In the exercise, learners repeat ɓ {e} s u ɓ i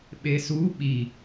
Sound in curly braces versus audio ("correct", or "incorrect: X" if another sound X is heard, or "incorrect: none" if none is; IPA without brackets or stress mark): correct